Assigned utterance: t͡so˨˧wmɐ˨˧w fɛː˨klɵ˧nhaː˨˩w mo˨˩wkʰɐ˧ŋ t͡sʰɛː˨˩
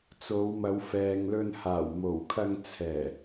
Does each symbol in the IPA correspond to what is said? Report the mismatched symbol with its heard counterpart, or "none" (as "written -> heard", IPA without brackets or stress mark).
k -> ŋ